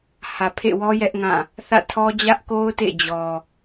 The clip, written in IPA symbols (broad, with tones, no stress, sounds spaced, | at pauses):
h ä˨ pʰ ḛ˦˨ w ɔ˦ j ɛ˦ ʔ ŋ ã˦˨ | θ ä̰˦˨ tʰ ɔ˦ d͡ʑ ä˦ ʔ k o˦ ʊ̯ t ḛ˦˨ d͡ʑ ɔ˨